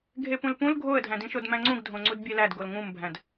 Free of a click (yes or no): no